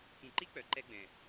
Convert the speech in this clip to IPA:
k ĩ˨ ǃ i˦ k͡p œ˨ ǃ ɛ˦ ɡ͡b ɛ̃˨

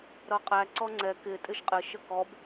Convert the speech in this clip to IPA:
ɾ ʌ qʼ æ ǀ ɔ ŋ͡ǀ ɛ k ɪ tʼ ɪ ʃ qʼ ɪ ʃ ə k ɔ b

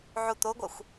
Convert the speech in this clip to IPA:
ʕ u t̪ o ɡʷ a xʷ

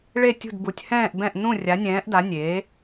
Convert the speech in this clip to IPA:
ɭ e˧˩ tʲ ṳ˧˩ d b u˩˧ tʲ h ɛ̃ː˧˩ ʔ b ɛ̃˧˩ ʔ n ũ˧˩ rʲ a˩˧ nʲ ɛ̃ː˩˧ ʔ d a˩˧ nʲ eː˩˧

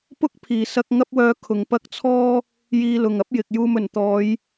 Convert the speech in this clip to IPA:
p ʊ˥ k̚ pʰ iː˨ s ɐ˧ k̚ ŋ ɐ˥ p̚ w œː˧ kʰ ʊ˨ ŋ p ɐ˥ k̚ t͡sʰ ɔː˥ | j iː˧ l ʊ˨ ŋ ɐ˥ p̚ j ɪ˨ k̚ j uː˧ m ɵ˨˩ n t̪ ɔː˨˧ j

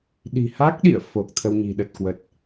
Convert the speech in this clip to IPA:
ɗ i̤˨˩ h a˦˥ k̚ ɗ ḭ˧˨ ə̯ f o˨˩ k̚ t̪ʰ ə˧ w ɲ i̤˨˩ ɗ ə˨˩ t̚ k w ə˨˩ t̚

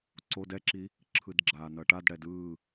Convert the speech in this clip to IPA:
ǀ o d ɛ ǁ i | ǁʰ ɯ d ɡ͡ǁ aː n ʌ ʈ a d ɽ ɛ d ɯː

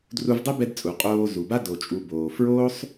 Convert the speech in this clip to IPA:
d r u˧ v dˤ ɛ˦ b ɛ˧ d t͡sʼ u˨ qʼ oː˧ z u˨ b a˦ d o˨ t͡ʃʼ u˨ b oː˨ f ɹ oː˦ sˤ

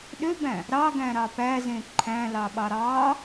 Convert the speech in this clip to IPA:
ɗ ø b æ̃ | ɾ ɑ ɡ æ̃ ɾ ɑ p æ z ẽ ǃʰ æ̃ l ɑ ɓ ɑ ɾ ɑ

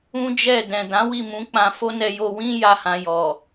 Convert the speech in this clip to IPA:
ũ˦ d͡ʒ ɛ˦˨ d ɛ̃˨ d ã˨˦ w i˦˨ m ũ˨˦ k͡p ã˧ f o˦ n ɛ˧ j o˧ w ĩ˦ j a˦ h ã˧ j ɔ˨

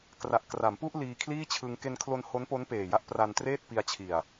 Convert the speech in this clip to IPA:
k r a˨˩ ʔ k r a˩˦ m p u˥˩ ʔ l iː˧ kʰ l iː˥˩ t͡ɕʰ ɯ˧ ŋ k e˧ n kʰ l o˧ n h o˦˥ n p o˦˥ n p eː˨˩ j a˦˥ ʔ p r a˧ n t r eː˥˩ t̚ p i˧ a̯ t͡ɕʰ i˨˩ a̯

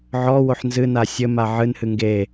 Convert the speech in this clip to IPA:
ʕ ɔ w o ħ n z ɨ n a sʲ ɘ m a ʕ ɨ n h ɨ ŋ ɡ e

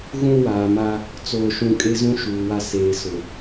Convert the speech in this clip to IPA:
ɣ ũ˦ w aː˨ m a˦ | t͡s oː˨ ʃ ũ˨ kʼ e˦ z ũ˦ ʃ uː˨ w a˦ s eː˨ s ʊ˨

